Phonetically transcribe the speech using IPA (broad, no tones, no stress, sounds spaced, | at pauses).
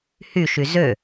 h y ʃ y z ø